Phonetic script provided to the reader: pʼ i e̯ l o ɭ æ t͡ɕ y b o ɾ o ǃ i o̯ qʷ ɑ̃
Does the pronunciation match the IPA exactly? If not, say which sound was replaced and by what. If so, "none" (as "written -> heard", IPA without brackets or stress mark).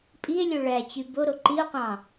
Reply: l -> lʲ